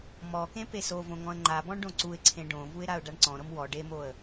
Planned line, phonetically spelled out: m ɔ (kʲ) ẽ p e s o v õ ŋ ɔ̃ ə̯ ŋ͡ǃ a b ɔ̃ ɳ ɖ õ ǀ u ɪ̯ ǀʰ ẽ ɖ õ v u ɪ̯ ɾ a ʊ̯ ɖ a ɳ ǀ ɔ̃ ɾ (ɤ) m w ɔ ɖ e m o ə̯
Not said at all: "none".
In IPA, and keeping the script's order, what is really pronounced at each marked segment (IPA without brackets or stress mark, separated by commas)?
k, ɤ